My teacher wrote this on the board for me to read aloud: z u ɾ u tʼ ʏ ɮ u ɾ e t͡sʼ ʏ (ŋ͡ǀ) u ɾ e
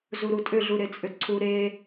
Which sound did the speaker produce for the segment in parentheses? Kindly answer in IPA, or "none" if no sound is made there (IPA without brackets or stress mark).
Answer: ǀʰ